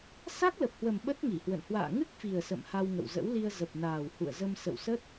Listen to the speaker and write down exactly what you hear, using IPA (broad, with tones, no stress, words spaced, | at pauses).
sa˦˥k̚lə˨˩p̚hwə˨˩m ɓə˦˥t̚ŋi˧˩hwə̰˧˨n hwa̰ː˧˨ŋɨ˦˥k̚fi˨˩ə̯ sə̰˧˨mha˧wŋə̰˧˨wzə̰˧˥w li˧ə̯zə˨˩p̚naː˨˩w hṵ˧˨ə̯zə˧m sə̰˧˨wsə˦˥t̚